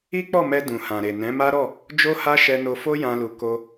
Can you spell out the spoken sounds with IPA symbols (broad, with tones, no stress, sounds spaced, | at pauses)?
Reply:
i˦ k͡p ɔ˦˨ m ɛ˧ d ũ˨ h ã˨ ɾ e˨ n ɛ̃˨˦ m a˦ ɾ ɔ˦˨ | d͡ʒ o˦ h a˦ ʃ ɛ˧ n o˧ f o˦ j ã˦ l u˧ k o˧